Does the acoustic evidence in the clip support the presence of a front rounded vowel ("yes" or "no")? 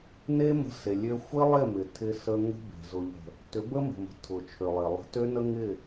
yes